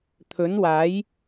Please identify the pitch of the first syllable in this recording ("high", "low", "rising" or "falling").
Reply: rising